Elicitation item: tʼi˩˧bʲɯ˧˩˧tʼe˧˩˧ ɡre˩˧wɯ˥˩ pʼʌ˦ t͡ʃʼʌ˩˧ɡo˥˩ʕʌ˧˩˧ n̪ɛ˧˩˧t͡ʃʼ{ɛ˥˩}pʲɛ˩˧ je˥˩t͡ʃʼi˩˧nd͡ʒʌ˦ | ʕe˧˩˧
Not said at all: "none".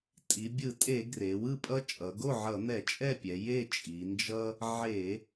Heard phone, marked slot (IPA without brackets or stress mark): ɛ˥˩